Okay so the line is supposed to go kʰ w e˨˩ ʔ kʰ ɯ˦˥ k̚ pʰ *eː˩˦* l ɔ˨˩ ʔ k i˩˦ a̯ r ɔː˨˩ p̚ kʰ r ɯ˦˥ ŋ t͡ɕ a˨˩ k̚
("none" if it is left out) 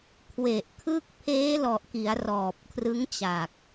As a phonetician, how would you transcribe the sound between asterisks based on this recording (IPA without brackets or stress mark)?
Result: eː˦˥